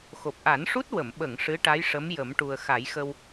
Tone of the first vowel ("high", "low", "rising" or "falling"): low